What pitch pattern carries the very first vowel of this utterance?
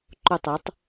falling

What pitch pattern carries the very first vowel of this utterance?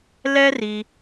high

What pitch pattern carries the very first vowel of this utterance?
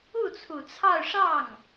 falling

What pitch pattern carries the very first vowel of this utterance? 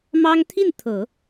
high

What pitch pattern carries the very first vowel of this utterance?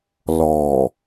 low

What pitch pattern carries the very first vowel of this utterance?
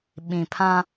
low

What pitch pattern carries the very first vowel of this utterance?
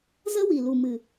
high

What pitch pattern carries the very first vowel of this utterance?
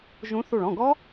rising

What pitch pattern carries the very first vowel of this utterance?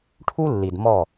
high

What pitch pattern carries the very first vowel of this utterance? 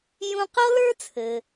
high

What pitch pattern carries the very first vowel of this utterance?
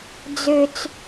low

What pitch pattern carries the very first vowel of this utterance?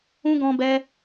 high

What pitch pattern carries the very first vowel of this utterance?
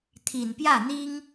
low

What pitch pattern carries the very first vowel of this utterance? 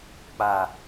low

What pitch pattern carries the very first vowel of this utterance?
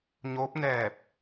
rising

